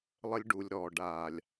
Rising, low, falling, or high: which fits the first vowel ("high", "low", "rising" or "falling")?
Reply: high